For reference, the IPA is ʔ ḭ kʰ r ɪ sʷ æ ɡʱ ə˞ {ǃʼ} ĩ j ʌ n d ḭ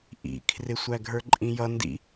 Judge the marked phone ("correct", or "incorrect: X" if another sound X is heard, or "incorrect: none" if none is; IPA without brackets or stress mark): correct